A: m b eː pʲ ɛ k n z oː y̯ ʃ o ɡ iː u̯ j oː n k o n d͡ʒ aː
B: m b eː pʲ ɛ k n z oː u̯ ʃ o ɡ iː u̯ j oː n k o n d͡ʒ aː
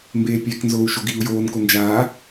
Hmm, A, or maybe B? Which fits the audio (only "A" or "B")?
B